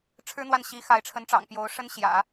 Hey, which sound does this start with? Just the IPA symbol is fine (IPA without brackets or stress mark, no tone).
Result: ʈ͡ʂʰ